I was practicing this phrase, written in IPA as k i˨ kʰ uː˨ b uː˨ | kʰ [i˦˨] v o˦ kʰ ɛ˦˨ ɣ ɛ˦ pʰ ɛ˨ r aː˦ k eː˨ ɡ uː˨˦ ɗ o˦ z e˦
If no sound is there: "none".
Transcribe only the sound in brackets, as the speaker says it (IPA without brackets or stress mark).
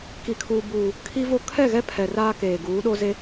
i˦